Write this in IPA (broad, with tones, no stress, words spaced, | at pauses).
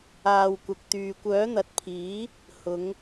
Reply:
aː˨wkʷɐ˨k̚ t̪yː˨kʷœː˨˥n̪ɐ˨˥t̚pʰiː˨˥ | hʊ˨˧ŋ